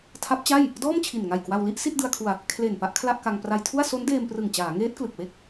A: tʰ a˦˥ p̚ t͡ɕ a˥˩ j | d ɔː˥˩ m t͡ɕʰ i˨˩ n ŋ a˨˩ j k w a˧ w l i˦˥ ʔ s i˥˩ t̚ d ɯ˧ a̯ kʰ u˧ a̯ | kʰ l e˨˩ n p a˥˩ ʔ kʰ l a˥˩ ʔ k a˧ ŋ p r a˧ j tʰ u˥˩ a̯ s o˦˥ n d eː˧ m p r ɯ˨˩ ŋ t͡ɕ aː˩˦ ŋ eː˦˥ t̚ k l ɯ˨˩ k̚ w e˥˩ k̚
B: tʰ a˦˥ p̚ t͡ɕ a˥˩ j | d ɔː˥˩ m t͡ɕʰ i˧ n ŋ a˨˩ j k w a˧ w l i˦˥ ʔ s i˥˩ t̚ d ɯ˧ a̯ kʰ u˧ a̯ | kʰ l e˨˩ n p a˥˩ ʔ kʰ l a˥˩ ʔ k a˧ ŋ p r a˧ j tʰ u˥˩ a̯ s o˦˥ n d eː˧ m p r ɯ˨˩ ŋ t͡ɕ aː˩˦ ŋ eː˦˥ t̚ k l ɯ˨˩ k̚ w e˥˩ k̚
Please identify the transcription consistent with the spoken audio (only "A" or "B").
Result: A